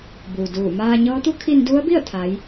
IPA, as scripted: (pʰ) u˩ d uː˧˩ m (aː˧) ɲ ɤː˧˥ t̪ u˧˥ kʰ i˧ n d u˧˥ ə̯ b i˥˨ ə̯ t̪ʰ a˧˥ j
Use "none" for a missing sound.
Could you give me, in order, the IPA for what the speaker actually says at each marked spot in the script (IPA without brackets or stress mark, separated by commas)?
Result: b, aː˧